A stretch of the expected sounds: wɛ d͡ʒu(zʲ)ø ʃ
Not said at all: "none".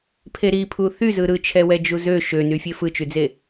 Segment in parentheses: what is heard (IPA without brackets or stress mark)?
z